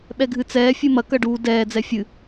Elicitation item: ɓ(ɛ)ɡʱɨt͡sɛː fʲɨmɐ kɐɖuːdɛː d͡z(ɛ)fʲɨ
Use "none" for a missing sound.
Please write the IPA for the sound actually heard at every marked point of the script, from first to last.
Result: ɛ, ɛ

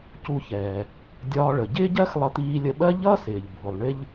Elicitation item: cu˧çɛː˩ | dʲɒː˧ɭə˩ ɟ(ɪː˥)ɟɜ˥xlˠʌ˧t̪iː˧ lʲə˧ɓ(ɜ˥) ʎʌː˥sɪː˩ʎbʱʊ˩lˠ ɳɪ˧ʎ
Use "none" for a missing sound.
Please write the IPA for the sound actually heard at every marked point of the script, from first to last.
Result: ɪː˥, ɜ˥

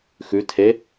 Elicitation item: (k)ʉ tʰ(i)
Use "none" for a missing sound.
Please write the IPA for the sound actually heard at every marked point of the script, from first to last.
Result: x, e

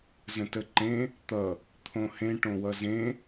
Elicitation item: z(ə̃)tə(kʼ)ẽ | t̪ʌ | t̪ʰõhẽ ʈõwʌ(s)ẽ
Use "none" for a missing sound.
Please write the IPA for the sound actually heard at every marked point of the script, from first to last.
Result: ə̃, ǃ, z

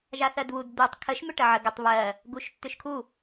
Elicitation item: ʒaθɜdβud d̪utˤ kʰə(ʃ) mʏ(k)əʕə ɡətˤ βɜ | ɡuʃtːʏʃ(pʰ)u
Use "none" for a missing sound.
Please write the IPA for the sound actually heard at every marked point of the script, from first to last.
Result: ʃ, ʈ, kʰ

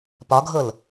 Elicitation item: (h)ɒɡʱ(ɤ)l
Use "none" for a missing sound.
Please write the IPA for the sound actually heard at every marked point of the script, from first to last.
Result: p, ɤ

